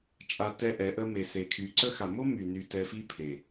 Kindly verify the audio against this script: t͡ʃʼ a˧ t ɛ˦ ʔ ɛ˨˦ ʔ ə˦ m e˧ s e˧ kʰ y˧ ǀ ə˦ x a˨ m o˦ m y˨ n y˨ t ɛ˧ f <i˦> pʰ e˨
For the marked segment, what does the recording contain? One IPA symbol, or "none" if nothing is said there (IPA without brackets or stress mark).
i˦